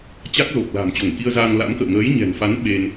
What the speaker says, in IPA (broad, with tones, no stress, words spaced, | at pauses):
t͡ɕa˦˥k̚zo˨˩k̚la̤˨˩m t͡ɕo˧˩ŋki˧ə̯zaː˧ŋ la̰˧˥mkə̰ː˧˨ ŋəː˨˦jɲɛ̤˨˩nfa˨˦n ɓe˧n